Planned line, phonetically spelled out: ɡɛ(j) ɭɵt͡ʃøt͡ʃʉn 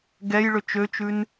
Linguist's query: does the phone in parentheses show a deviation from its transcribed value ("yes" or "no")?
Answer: no